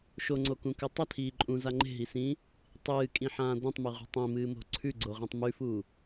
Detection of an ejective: present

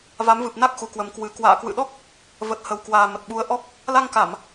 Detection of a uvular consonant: absent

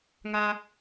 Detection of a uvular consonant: absent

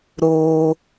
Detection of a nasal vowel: absent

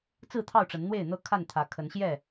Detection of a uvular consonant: absent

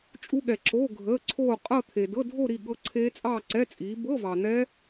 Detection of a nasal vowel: absent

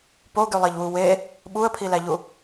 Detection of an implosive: present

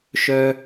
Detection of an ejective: absent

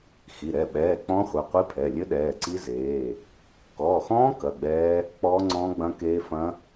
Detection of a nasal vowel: present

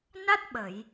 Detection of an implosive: present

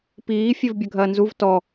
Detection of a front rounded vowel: present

